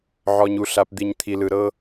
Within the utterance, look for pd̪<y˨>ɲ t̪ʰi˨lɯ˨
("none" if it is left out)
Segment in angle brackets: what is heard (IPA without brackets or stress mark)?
i˨